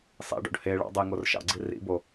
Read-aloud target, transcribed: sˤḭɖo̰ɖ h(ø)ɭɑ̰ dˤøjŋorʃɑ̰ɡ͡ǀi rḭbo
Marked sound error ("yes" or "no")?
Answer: yes